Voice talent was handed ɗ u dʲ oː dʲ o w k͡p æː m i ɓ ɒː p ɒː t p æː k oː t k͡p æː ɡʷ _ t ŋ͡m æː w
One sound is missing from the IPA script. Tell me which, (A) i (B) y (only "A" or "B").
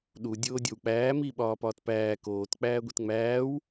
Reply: A